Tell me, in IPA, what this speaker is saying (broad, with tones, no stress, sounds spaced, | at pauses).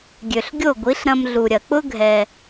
ɡʲ ø˩ ɬ ɡʲ o˥˩ ɡʷ i˩˥ ɬ ɾ ɐ̃˧ m ɮ u˩ ɾʲ ɐ˩ k͡p ʊ˥ ɡʱ ɛ˩